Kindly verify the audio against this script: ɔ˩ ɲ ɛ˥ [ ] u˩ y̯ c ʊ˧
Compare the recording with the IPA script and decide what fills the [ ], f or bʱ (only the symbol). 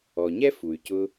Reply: f